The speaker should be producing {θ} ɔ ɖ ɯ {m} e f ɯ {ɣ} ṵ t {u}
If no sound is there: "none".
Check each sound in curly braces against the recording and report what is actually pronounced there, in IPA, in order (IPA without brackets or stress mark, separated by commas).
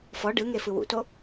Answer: f, ŋ, w, o